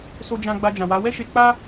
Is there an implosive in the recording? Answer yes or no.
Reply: no